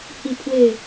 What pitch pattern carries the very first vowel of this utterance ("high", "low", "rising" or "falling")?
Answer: falling